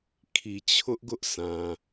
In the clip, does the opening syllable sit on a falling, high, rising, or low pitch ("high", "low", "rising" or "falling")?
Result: low